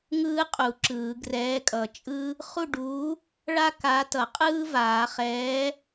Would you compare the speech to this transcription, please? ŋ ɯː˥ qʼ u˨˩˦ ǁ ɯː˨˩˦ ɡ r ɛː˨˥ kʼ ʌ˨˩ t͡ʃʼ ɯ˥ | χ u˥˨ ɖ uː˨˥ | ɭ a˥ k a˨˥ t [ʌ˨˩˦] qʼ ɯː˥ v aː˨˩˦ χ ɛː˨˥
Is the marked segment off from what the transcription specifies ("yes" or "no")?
no